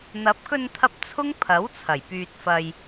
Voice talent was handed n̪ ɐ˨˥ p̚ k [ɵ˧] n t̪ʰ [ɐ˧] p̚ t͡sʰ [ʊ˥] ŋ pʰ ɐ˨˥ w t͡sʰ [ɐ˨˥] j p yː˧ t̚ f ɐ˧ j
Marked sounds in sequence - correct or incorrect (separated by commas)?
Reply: correct, correct, correct, incorrect